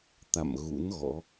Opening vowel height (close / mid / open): open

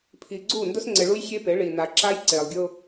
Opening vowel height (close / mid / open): close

